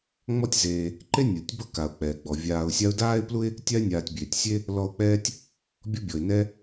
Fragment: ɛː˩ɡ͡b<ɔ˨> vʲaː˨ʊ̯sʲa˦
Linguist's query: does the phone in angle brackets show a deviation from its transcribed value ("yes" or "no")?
yes